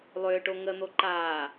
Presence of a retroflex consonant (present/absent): present